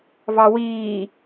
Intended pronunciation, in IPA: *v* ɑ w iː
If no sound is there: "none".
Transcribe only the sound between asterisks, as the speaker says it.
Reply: v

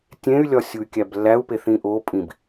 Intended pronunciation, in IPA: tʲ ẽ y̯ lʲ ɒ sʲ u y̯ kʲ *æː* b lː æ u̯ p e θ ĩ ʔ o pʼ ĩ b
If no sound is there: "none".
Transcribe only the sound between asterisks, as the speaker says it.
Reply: æ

